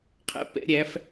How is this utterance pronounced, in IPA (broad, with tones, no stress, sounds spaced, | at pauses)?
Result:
qʰ ɛ̰˧ p ɛ̰˧˥ ɾʲ æ˧˥ f